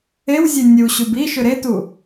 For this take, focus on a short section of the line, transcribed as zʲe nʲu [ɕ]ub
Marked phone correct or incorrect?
correct